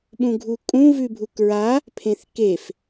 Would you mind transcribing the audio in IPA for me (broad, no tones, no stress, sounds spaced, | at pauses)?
ɓ ũ ɡʱ u kʼ ũ v ʉ bʱ u k ɹ a | pʰ ẽ θ k e f